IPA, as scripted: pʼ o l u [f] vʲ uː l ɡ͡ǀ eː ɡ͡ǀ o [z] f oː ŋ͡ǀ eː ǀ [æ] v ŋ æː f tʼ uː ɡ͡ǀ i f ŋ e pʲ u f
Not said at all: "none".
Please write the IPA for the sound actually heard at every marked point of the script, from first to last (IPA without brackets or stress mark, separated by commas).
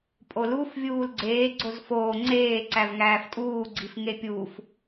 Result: f, z, æ